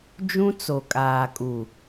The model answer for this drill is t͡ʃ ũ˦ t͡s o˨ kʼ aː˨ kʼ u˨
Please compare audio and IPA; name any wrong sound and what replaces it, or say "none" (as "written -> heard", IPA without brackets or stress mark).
t͡ʃ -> d͡ʒ